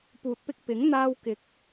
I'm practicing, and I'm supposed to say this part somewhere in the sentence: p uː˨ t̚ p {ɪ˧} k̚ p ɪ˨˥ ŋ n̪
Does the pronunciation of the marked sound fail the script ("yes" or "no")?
no